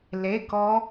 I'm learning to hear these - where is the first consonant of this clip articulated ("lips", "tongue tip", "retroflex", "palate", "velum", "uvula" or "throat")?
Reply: tongue tip